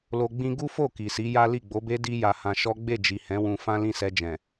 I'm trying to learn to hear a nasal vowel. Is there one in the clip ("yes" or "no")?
yes